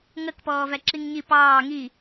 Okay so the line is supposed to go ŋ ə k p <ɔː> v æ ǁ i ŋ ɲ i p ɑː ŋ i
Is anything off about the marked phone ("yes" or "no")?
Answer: no